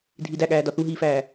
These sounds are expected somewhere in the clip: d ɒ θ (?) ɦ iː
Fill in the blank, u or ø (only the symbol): u